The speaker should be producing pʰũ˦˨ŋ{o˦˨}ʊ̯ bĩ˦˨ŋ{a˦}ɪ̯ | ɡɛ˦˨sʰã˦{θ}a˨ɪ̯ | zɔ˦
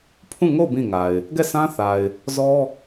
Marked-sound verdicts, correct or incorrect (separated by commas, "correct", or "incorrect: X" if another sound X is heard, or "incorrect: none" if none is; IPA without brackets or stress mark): correct, incorrect: a˨, correct